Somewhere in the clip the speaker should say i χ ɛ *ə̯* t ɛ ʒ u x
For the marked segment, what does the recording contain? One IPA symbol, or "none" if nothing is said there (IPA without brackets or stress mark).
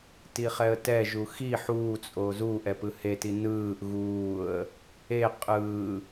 ə̯